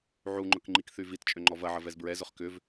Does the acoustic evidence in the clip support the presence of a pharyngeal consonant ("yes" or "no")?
yes